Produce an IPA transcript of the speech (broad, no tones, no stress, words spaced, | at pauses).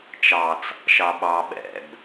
t͡ʃɑt͡s | ʃɑɓɑ ɓɛ̰b